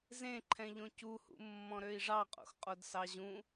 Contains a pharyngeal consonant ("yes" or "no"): no